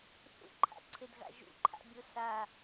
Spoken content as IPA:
θ ṵ ǃʰ a̰ ǀʰ e d ɣ a̰ ʒ ṵ ǃʰ a̰ bʲ o s a

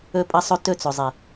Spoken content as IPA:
ɵ˧ pʼ ɐ˧ sˤ ɵ˧ t ɵ˦˨ t͡s ɵ˨ zˤ i˨

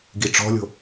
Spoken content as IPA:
ɡ i ʈ͡ʂ ɔ̤ lʲ o̤

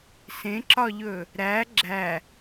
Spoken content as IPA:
s ẽ ǁ ɒ ʎ ɵ | ɾ æ ɡ͡ǁ æ

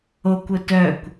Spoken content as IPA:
o kʷ ʊ t œ kʷ

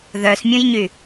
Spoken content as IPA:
ð œ s mʲ ũ j ɲ y

